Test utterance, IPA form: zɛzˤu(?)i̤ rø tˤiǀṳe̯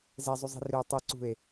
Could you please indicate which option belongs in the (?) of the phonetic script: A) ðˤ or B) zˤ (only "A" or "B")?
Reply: B